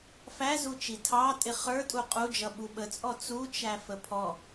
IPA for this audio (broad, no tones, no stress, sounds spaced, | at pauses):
f æ z u t͡ʃ i tʰ ɑ tʼ ɪ χ ə˞ tʼ u qʼ u d͡ʒ ʌ ɓ u ɓ ə t͡sʼ ɔ t͡s u t͡ʃ æ f ə pʰ ɔ